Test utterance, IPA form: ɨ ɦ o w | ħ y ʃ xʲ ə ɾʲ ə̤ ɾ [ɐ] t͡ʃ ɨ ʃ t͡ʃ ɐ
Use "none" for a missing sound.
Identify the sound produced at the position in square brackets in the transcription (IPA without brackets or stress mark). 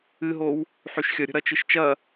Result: ɐ